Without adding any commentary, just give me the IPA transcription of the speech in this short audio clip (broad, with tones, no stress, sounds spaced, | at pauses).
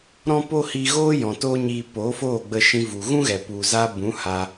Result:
ɾ ɔ̃˦ p o˦ h i˧ ɣ oː˦ j ɔ̃˨ t oː˦ ɲ iː˧ p oː˨˦ f oː˦˨ ɡ͡b ə˧ ʃ ĩ˧ v u˨ ɣ ũ˦ ɣ ɛ˨ p u˨ z aː˧ b ũ˨˦ h a˧